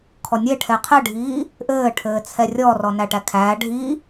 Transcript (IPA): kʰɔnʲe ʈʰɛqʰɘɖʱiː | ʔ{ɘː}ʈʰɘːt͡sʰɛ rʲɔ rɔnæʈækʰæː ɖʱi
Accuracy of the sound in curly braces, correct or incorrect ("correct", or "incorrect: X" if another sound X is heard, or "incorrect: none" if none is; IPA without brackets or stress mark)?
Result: correct